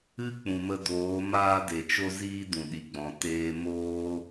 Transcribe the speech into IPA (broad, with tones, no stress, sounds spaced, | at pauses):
ɨ˦ k͡p ũ˨ m ə˧ d oː˨˦ m aː˧ d e˨ t͡ʃ o˧ z iː˦ d ũ˨ ɗ i˨ ɡ͡b ɔ̃˨ t eː˧ m oː˦